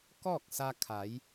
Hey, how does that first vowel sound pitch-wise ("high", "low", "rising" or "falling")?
falling